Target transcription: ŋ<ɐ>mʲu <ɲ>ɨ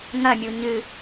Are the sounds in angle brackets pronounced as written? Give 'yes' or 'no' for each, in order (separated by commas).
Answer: yes, yes